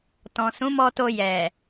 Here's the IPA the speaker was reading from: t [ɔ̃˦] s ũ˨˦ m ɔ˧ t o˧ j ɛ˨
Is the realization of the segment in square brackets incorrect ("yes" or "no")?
yes